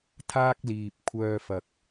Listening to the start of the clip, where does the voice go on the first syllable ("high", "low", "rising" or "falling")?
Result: high